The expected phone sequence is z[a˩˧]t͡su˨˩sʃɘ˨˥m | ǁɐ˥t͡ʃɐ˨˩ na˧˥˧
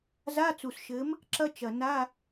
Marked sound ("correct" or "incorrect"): incorrect